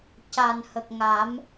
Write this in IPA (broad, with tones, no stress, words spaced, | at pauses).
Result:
ca˨˩nhə˨˩k̚ŋa˨˩˦m